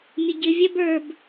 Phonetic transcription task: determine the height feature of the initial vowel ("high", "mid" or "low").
mid